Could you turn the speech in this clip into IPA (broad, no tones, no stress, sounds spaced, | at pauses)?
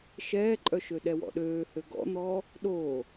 ʃ ɛː ǃʼ œ ʃ ø ɗ ɛ w ɔ̰ ɗ øː h ø ɡ ɔ̰ n̪ ɔː | ɗ oː